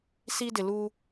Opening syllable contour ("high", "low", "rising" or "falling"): high